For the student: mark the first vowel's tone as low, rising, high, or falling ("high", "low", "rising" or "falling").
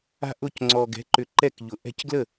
high